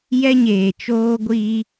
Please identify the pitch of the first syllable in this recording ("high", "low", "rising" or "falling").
high